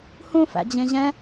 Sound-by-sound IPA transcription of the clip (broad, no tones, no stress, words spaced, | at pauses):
hũ fæ̰d͡ʑẽʑɛ̃